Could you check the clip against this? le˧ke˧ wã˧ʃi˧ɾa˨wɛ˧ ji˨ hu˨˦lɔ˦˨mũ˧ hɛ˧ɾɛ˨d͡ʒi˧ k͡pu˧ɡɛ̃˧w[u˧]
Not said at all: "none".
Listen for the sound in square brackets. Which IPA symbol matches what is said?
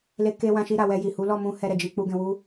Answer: u˦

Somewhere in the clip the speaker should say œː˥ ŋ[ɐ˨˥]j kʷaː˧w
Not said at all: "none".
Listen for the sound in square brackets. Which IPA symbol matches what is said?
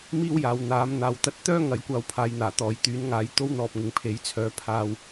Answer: ɐ˨˥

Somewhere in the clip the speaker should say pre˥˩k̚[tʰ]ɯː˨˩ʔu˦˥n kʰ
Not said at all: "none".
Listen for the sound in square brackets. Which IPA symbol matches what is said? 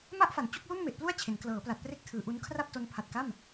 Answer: tʰ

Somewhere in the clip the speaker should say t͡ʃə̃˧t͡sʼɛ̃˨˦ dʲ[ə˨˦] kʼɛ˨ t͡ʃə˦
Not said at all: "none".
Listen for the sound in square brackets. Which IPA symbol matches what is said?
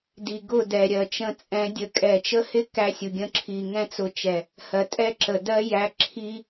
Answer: ə˧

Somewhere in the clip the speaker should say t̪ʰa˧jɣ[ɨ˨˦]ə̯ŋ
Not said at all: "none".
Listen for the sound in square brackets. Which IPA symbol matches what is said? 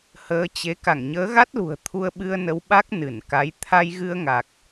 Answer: ɨ˧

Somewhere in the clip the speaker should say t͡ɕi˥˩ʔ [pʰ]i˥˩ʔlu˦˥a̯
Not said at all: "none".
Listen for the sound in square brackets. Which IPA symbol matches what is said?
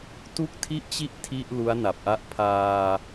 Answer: tʰ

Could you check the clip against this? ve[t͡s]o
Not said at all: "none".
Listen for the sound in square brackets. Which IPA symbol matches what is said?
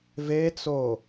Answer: t͡s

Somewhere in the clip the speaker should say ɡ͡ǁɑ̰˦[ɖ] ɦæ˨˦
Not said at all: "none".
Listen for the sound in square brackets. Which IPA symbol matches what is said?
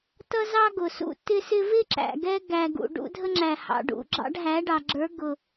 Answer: ɖ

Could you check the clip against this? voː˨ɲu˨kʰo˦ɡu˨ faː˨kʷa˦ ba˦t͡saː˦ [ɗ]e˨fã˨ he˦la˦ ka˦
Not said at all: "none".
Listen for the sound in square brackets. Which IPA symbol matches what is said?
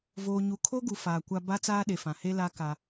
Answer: ɗ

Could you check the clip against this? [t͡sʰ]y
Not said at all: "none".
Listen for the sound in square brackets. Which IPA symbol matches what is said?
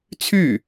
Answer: t͡sʰ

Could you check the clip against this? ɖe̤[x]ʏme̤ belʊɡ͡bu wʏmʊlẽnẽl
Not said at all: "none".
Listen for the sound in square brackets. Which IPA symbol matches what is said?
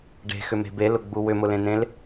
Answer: x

